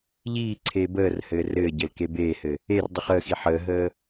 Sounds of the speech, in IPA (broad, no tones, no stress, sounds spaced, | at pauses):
ʎ iː ǀʰ eː b əː r h ɘː r ɘː ɟ ɘ l k e b eː h ɘ | e r dˤ i χ əː x i ħ əː ɦ əː